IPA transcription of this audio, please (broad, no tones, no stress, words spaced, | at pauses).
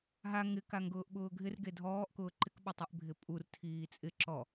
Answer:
ɦa ŋɪ kaŋɡʊːʔɓʊːɡʱɪr ɡedʱɔːʔkʊː ǃɪkɓʊtˤeʔ bʱɪpʼur tʰiːt͡sʼɪ ǁɔ